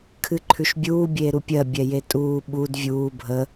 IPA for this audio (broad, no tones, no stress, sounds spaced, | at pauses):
kʰ ɨ ǃʰ ʉ ʃ bʲ uː bʲ eː ɾ u pʲ ɜ bʲ ɛ j e tʼ uː ɓ u d vʲ uː bʱ ə